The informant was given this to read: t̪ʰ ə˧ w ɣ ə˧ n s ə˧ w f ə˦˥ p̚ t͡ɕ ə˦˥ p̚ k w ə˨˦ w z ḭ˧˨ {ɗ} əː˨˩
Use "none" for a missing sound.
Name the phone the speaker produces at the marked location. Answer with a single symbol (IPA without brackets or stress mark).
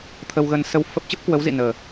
n